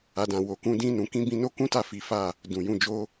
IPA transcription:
a˨ d ã˨ w o˨ k ũ˧ d ĩ˧ n ũ˨ k ĩ˧ b ĩ˧ n o˦ k ũ˦ t a˦˨ f i˨˦ f a˦˨ | d ũ˨ j ũ˨ d͡ʒ o˧

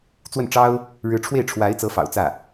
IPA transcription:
t͡s w ə˥˩ n ʈ͡ʂ ɑ˥ ʊ̯ | ɻ ɻ̩˧˥ ʈ͡ʂʰ w e˥˩ ɪ̯ ʈ͡ʂʰ w a˧˥ ɪ̯ t͡s ɤ˧˥ f ɑ̰˨˩ ʊ̯ t͡s ä˥˩

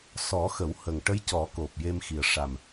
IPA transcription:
s ɔ˨˩˦ x ə˨˩˦ w h ə˨˩ ŋ ʈ ə˧˥ j c ɔ˨˩˦ k o˨˩ p̚ j e˧ m x i˨˩ ə̯ ʂ a˨˩ m

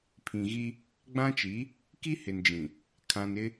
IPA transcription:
pʰ ĩ˨ ɣ i˦ | ɡ͡b ã˦ t͡ʃ i˨˦ | k i˦ h ɪ˨ n d͡ʒ ĩ˨ | kʰ ã˨ n ɪ˦

